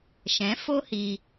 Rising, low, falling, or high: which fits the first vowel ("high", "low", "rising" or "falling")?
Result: rising